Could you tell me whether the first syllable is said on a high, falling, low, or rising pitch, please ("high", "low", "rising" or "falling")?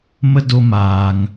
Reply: high